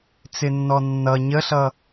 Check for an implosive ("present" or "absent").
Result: absent